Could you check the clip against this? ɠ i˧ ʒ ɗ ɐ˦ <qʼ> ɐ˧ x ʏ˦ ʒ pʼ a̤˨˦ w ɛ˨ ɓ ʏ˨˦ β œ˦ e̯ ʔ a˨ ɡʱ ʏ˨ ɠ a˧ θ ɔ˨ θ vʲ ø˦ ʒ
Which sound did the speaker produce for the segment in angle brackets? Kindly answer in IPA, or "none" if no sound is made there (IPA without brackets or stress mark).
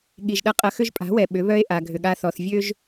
qʼ